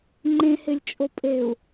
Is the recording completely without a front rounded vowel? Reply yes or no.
yes